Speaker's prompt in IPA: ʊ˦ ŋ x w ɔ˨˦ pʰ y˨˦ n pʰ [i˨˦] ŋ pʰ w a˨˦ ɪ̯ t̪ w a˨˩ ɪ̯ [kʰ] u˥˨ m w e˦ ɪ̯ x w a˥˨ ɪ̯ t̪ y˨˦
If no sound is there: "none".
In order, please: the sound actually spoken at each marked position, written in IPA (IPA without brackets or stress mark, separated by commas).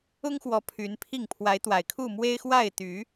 i˥˨, kʰ